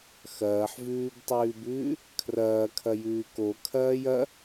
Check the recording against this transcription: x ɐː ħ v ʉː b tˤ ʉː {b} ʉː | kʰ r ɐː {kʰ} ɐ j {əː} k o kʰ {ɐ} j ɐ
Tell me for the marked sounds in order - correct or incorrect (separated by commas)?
correct, correct, incorrect, incorrect